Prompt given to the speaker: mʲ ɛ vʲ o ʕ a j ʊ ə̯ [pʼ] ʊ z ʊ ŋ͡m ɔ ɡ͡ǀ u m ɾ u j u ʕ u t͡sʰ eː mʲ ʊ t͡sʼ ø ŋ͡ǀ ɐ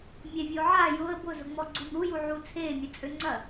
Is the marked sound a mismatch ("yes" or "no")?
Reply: yes